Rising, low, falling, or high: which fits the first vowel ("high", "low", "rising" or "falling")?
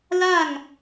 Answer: falling